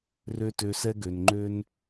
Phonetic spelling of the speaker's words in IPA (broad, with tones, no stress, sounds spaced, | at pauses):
r ø˦ t ø˧ s ɛ˦ ɡ ø˨ n ŋ͡ǃ ø˦ n